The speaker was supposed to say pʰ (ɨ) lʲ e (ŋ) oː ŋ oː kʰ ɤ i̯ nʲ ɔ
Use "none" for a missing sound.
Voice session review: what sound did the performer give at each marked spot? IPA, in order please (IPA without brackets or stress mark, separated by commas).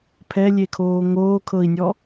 ɛ, kʰ